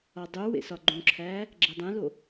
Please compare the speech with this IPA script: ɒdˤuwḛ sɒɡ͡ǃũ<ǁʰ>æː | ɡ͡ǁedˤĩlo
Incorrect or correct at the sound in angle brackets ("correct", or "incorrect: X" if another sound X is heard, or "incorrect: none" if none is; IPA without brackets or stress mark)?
correct